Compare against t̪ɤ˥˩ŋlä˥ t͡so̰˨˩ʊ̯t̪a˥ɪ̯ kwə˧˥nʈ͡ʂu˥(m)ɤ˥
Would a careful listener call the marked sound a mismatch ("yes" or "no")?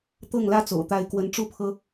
yes